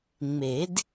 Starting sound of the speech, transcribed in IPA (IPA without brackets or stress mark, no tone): ŋ͡m